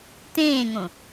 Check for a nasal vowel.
present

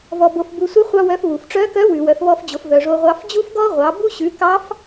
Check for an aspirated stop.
absent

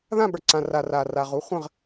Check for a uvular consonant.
present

